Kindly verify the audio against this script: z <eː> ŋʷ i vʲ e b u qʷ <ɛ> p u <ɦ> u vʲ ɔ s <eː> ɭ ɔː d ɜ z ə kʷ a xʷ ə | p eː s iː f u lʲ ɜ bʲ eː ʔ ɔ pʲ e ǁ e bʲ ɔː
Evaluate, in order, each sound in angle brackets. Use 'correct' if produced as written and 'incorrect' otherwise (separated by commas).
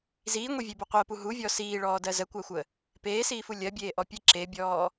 incorrect, incorrect, correct, incorrect